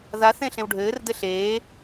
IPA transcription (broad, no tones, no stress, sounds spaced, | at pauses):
ð a θ ẽ ɬ ẽ w ɖʱ ɘː r d ɘ ɬ eː